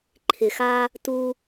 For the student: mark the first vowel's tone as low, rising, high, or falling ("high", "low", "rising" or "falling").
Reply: low